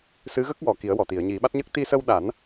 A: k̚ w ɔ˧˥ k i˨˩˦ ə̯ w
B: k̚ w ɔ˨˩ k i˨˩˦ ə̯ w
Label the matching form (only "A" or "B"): B